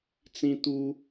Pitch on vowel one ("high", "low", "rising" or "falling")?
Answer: high